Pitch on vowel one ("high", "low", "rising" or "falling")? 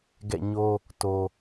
falling